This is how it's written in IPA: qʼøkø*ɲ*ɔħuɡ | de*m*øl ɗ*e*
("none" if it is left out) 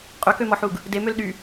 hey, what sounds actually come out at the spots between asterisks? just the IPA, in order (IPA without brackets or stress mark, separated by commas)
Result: m, m, y